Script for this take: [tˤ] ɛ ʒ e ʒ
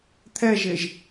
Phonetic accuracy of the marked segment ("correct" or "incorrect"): incorrect